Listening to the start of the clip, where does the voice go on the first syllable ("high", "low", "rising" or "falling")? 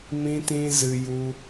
high